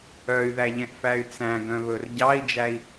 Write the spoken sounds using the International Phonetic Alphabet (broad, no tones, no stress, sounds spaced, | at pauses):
œ y̯ ð æ ʎ ɛ̃ ʔ f æ y̯ t͡s æ̃ ɡ œ̃ β ɵ r ɟ ɑ i̯ d͡ʒ æ i̯